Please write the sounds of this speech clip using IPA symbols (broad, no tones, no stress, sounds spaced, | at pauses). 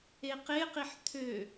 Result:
e q e q i ħ t̪ʰ ø